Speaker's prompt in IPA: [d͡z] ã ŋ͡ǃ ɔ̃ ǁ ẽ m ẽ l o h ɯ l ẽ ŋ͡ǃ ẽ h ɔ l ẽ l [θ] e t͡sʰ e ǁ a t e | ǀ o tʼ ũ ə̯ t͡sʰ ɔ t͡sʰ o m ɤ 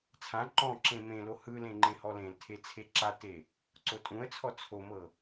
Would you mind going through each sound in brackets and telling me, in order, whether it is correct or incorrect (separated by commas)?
incorrect, incorrect